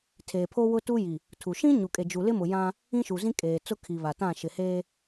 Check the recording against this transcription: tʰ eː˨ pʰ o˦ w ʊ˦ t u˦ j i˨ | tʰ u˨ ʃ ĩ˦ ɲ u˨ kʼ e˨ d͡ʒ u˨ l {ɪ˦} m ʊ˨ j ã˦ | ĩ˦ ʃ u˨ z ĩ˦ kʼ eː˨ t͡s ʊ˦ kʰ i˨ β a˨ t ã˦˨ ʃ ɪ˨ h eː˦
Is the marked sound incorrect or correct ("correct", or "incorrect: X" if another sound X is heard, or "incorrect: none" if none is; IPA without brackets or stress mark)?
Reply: correct